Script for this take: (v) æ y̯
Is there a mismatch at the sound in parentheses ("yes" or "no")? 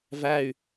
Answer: no